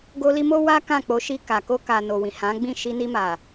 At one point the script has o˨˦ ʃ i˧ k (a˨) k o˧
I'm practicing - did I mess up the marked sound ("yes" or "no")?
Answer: no